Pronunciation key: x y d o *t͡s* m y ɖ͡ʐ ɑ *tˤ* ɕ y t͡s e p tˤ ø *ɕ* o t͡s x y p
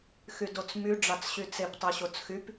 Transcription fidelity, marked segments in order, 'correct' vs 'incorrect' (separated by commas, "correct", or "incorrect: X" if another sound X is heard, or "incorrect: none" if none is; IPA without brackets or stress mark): correct, incorrect: t͡s, correct